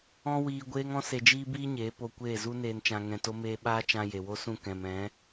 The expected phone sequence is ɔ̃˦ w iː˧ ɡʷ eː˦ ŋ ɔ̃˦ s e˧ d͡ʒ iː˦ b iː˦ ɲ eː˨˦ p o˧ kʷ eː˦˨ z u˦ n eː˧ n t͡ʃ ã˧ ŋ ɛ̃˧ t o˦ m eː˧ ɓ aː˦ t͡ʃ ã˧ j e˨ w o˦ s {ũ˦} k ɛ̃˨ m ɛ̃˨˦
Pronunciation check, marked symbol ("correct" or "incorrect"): incorrect